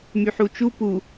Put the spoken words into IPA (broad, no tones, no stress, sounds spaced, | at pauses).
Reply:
m y ħ u t͡ʃ u p u